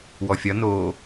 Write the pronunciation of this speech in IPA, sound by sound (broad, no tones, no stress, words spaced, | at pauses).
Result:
wɔfʲɒ noː